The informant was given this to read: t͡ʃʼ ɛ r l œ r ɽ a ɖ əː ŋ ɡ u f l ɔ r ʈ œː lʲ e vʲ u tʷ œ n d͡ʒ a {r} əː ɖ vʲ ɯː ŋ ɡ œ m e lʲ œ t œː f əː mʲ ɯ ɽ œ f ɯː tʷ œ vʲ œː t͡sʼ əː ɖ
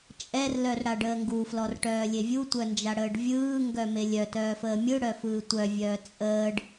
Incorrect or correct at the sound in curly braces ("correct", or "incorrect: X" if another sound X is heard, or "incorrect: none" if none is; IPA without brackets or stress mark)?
incorrect: ɽ